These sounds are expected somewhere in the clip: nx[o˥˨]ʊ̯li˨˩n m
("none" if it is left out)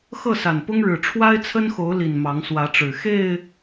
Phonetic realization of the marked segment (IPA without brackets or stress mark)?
o˨˦